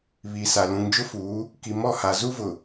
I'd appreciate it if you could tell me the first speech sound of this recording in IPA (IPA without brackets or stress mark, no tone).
β